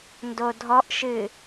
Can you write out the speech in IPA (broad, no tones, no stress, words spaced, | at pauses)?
ndodʱɔʔʃɨ